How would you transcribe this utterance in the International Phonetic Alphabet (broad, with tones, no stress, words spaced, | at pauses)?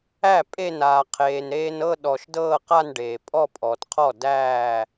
æ˥˩ pʼe˥˧naː˩ qʰeː˩n ɾeː˧nɤ˥˧ ɗɔ˩ʃ dɤː˥˧qa˥˧nɖeː˩ pʼɔ˥˧pʼɔː˩tqʰɔ˥˩ dæː˥˩